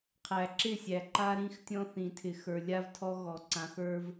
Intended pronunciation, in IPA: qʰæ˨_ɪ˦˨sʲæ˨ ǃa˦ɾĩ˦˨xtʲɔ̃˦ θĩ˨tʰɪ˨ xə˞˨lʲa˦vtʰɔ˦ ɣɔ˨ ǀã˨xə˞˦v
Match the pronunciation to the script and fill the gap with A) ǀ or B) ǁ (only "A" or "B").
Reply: B